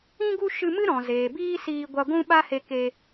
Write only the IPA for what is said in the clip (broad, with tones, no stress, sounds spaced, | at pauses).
ĩ˦ ɡ u˦ ʃ ɨ˧ m ɨ˦ ɾ ɔ̃˨ z eː˨ b iː˦ s iː˧ ɡʷ a˧ ɡʷ ũ˦ ɓ a˦ h e˧ k e˧